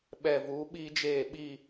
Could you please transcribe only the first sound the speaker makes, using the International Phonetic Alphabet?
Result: ɓ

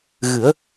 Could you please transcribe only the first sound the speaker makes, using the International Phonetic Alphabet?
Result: ɣ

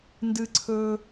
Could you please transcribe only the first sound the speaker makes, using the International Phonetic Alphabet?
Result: n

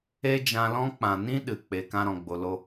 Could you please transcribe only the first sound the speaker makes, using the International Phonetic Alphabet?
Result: e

